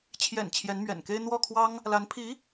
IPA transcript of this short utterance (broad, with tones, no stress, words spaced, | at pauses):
t͡ɕʰjɛ̰˨˩n t͡ɕʰjɛ˧˥nmɥɛ̰˨˩nke˥ɪ̯ n̪wɔ˥˩kʰwɑ˥ŋ | la˧˥npʰi˧˥